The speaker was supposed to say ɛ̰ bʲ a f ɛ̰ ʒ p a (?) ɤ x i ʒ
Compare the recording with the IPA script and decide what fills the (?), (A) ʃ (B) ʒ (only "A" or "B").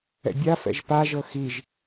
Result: B